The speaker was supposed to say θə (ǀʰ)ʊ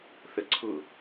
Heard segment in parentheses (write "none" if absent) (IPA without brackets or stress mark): ǀʰ